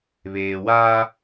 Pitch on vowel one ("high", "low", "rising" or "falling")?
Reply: low